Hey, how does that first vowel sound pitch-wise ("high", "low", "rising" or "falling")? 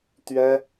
high